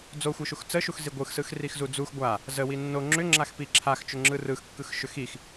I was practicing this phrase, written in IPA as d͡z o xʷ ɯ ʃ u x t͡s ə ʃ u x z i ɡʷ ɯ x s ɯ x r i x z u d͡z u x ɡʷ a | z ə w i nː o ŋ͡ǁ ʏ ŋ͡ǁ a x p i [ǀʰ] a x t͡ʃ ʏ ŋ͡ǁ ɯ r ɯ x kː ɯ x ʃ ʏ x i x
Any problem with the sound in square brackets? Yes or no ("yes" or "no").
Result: yes